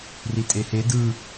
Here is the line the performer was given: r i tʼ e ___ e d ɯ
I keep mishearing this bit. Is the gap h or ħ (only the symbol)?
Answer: h